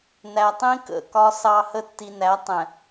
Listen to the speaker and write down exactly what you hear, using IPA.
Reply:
n æ˨ tˤ ĩ˦ k ə̰˨ k ɒ˦ s ɑ˦ h ə˦ tː i˨ n æ˨˦ tˤ ɛ̃˨

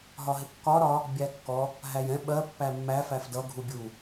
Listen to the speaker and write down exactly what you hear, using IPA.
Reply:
ɦ ɒ ɦ ɪ kː ɒ ɾ ɒ | bʲ æ kː ɔ | ɦ æ j ɛ̃ ɓ ɜ pː æ mː æ f æ f d ʌ ɡʱ u bʲ u

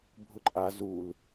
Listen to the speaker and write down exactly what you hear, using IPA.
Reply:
bʱ ʊ ǃʼ a z u l

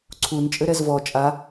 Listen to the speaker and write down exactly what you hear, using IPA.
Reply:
ǀʰ u n t͡ʃʼ ɘ ɾ ɛ z v ɔ t͡ʃʼ a

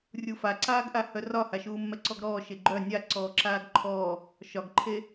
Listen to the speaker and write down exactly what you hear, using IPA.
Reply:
rʲ u f a ǀ aː ɡ ʔ a h œ r ɒ h a ʃ uː mː ɛ ǀ ɔ ɡ ɾ ɔː ʃ e ɡ͡ǃ œ nʲ a ǀ ɔː ǁ aː ɡ ǃʰ ɔː | ʃ ɒ ɡ ǃʰ e

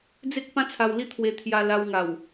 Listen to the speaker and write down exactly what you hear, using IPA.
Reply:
d͡z e˦ k̚ p ã˦ t͡sʰ a˧ w l i˥˧ t̪ʰ w e˧ t̪ʰ j a˧ l a˧ w ŋ a˨˩ w

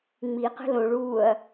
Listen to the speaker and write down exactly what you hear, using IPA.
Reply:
ŋ͡m i q ə̤ l õ ɭ uː ɐ̯

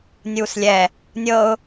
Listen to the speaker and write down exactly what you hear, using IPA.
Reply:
nʲ uː s lʲ ɛ | nʲ ɤ ʊ̯

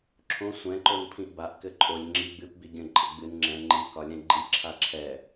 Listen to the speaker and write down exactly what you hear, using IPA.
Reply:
ǁʰ õ sʷ ɛ̃ ǃ o n pʰ ĩ ʔ b a ʔ k ɘ ǃʼ o lʲ ŋ͡ǁ i ɡ͡b ɨ p b i ɡʲ ə̃ ǃʼ ə ɡ͡b ɨ n ŋ͡ǁ ɛ̃ ŋ͡ǃ i k ɒ lʲ ɛ̃ ɡ͡ǃ i lʲ ǁʰ a ǁʰ ɛ

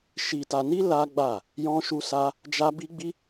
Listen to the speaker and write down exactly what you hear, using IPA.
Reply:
ʃ i˧ t a˧ n i˦ l a˦ ɡ͡b a˦˨ | j ɔ̃˦ ʃ u˦ s a˦ | d͡ʒ a˦ b i˦ ɡ͡b i˦

